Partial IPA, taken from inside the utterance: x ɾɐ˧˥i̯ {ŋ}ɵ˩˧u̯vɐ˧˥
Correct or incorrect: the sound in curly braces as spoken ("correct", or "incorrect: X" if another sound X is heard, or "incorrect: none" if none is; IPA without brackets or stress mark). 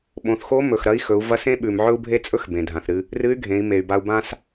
incorrect: x